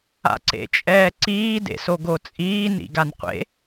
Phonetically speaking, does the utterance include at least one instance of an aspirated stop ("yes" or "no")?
no